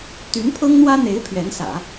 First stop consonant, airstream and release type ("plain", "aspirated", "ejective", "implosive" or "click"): plain